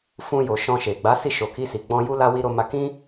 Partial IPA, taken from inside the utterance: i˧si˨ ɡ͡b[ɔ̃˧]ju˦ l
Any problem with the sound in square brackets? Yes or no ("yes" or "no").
no